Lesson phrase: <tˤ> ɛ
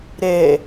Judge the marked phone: incorrect: ɾ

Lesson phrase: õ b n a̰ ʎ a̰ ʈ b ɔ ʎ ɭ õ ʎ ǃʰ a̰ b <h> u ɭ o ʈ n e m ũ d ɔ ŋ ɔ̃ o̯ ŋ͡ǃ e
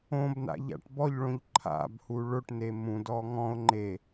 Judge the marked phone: correct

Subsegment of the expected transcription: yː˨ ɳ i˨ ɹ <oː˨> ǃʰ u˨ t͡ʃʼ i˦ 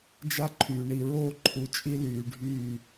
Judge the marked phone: incorrect: oː˦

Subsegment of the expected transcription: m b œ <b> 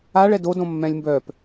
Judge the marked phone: incorrect: p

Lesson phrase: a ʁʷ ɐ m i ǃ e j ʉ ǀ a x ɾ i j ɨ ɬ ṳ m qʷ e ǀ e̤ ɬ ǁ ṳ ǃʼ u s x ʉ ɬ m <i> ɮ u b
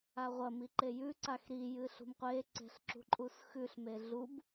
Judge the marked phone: incorrect: e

